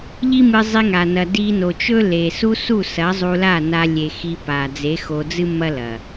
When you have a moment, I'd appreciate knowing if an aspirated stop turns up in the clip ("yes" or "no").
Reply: no